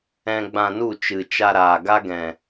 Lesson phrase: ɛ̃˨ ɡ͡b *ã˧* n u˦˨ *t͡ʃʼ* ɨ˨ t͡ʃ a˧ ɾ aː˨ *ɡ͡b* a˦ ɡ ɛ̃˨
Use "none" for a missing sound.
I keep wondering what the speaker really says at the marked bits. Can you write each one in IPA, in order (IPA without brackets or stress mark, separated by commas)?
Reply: ã˨, t͡ʃ, ɡ